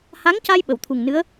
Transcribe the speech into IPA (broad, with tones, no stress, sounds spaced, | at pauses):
h a˧˥ ŋ c a˧ j ɓ ə˨˩˨ w t̪ʰ u˨˩ ŋ n ɨ˧˥ ə̯